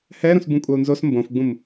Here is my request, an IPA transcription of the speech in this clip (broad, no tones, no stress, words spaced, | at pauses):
hɛɾũs bũkʷʼɐu̯nzos mbõfɡ͡bũm